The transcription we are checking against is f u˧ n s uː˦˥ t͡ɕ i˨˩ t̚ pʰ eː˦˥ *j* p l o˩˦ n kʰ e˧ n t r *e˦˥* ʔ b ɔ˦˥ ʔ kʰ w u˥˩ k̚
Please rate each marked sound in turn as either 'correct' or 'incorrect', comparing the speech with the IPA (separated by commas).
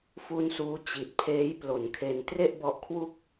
correct, incorrect